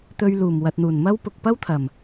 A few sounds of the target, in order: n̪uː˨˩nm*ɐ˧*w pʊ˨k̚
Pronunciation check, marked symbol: incorrect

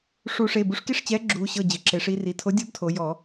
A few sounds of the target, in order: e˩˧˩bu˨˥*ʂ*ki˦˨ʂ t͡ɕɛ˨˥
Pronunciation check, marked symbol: correct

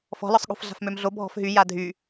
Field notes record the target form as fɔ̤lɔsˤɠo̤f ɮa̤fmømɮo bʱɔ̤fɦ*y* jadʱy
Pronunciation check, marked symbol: correct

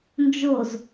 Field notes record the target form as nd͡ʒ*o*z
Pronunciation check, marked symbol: correct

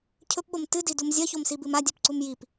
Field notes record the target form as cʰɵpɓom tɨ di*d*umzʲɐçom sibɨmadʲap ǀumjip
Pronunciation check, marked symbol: correct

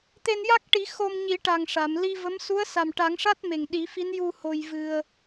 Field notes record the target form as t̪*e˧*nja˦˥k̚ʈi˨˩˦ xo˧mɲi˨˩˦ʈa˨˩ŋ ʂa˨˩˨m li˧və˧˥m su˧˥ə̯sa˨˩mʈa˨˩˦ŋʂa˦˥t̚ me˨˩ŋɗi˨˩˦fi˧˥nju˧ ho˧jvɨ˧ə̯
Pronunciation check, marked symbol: correct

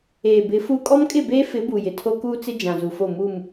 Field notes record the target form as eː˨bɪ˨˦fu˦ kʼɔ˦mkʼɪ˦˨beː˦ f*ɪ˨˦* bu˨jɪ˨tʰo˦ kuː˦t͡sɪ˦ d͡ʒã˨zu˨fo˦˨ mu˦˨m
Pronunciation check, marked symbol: correct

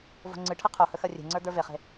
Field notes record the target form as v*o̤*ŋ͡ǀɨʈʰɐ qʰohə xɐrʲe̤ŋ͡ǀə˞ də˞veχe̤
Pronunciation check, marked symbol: correct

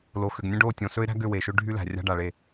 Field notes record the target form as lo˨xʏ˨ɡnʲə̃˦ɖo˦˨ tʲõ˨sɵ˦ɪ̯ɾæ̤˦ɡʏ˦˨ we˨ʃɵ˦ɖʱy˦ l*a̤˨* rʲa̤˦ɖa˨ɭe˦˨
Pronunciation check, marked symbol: incorrect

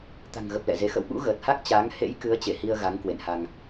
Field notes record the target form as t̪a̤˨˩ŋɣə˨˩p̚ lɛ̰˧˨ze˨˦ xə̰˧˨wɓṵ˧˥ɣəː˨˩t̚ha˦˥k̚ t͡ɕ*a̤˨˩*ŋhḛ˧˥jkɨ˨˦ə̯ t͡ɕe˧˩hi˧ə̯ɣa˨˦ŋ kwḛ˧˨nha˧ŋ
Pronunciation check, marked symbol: incorrect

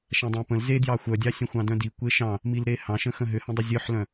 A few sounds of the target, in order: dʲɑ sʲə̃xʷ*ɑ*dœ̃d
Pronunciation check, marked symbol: incorrect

